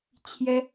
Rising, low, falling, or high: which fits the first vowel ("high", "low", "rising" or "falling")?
high